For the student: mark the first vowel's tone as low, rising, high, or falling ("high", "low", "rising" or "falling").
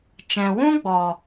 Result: low